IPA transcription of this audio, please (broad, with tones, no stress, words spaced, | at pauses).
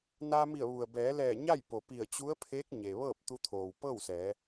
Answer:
na˧mi˧˩ə̯ ʋu˩ə̯bɛː˩˧lɛː˧˩ ɲa˥˨jpo˩ pi˧˩ə̯t͡ɕu˧˥ə̯pʰeː˧˥k̚ ɲe˩ʋɤː˥˨p̚t̪u˧t̪ʰoː˩w pɤː˥˨wsɛː˩˧